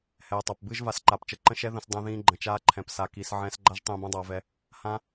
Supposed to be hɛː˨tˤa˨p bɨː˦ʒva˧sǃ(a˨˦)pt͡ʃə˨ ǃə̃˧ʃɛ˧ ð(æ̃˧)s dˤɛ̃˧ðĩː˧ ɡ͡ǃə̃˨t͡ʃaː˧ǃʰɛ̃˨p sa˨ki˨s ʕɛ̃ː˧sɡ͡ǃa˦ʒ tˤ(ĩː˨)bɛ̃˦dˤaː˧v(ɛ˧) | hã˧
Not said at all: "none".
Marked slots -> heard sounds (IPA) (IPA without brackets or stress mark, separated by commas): a˨˦, ə̃˧, ĩː˧, ɛ˧